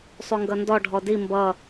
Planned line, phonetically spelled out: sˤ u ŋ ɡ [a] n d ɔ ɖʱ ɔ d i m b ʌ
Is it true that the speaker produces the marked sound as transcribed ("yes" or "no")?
no